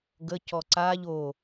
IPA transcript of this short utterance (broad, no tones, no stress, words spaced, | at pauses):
ɡəcɔ ǀaʎ o